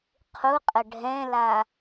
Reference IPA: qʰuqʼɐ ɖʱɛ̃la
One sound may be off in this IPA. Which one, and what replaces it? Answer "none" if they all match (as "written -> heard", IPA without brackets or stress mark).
ɐ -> ə